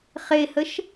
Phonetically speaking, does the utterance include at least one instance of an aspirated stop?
no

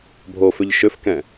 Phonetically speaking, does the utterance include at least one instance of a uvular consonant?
no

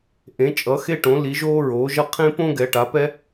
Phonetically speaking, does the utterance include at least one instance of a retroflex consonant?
yes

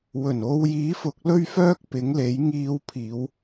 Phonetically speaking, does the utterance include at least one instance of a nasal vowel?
no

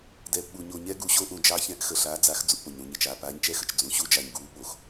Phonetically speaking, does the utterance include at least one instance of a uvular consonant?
no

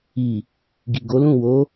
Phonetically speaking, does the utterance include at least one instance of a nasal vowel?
yes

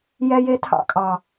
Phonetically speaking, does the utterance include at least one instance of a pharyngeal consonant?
no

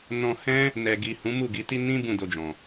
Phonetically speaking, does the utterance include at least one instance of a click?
no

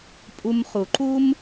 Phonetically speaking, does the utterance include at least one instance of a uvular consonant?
yes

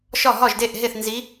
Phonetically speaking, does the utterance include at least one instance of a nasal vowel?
no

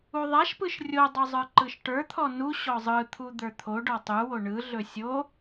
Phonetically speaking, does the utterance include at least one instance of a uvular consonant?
no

